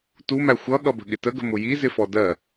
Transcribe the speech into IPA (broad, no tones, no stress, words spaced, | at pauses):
tumæ xʷʌɠʌbə̤ ɠɪtəɡə̤ mʊjizɪfɔ dɜ